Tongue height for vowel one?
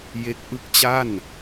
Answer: mid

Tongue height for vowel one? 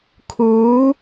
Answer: high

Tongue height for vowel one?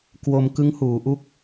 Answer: mid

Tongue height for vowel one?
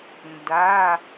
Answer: low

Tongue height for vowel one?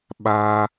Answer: low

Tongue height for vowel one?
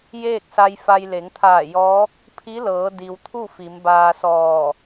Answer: mid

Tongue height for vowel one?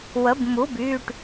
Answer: mid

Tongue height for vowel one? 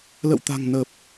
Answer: mid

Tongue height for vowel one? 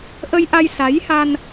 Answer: mid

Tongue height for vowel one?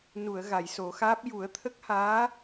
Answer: high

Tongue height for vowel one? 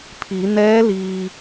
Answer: high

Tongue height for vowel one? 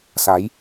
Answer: low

